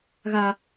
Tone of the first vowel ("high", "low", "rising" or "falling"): high